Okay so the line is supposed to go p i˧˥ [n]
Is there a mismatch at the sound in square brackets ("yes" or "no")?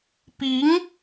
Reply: yes